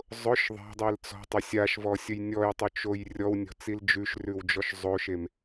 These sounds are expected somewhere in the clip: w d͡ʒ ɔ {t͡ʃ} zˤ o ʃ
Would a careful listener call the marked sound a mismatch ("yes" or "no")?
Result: yes